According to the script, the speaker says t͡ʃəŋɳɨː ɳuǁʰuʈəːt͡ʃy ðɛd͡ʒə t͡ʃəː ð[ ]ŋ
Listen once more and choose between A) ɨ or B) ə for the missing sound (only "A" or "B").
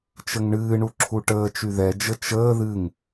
A